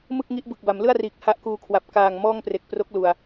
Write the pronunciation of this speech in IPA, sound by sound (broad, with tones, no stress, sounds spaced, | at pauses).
m ɯ˥˩ k̚ ŋ i˦˥ ʔ b ɯ˨˩ k̚ b a˩˦ m l ɯ˥˩ a̯ r iː˨˩ k̚ h a˦˥ ʔ k uː˧ kʰ w a˨˩ p̚ k aː˨˩ ŋ m ɔː˥˩ ŋ p r e˨˩ k̚ p r o˦˥ k̚ l u˨˩ a̯